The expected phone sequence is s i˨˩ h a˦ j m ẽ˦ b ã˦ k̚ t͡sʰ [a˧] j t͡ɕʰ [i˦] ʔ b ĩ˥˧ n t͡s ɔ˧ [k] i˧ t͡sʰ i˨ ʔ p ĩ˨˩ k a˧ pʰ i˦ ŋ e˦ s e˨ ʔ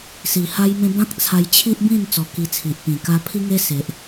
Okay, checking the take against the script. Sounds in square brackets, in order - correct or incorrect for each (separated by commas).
correct, correct, correct